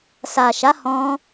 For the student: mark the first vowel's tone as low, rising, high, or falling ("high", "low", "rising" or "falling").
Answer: low